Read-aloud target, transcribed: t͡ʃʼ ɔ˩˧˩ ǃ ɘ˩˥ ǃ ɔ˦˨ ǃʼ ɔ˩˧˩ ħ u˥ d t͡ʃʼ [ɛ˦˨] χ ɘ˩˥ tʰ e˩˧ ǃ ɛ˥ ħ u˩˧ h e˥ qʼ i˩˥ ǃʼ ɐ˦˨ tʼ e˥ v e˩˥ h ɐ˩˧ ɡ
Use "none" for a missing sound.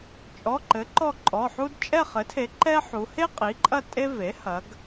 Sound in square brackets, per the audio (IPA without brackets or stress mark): ɛ˦˨